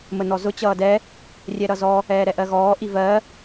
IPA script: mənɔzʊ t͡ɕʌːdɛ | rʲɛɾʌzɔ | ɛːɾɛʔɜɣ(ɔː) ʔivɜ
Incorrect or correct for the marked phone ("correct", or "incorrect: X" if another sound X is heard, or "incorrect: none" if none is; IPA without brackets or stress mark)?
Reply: correct